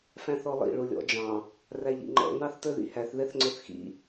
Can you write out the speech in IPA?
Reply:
fæ̃θɔlˠḭ ɭulʲɔ̰d͡ʒɑ̃ | ræʎḭŋ͡ǃɔ̰ nɑθtə˞ðḭhæθ ðɛθŋ͡ǀʊθxḭ

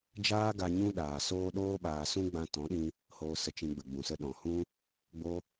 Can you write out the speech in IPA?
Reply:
d͡ʒaː˦ɡa˧ ɲũ˦ɗaː˨soː˦ ɗoː˦ɓaː˧sũ˦ ɡ͡bã˧tɔ̃˨˦ɗĩ˧ | hoː˧sə˧t͡ʃĩ˧ɡ͡bə˨ ɡ͡bũ˨sə˧ɗɔ̃˨hũ˦ | ɡ͡bo˦

